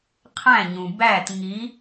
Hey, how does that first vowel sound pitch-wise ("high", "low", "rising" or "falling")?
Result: falling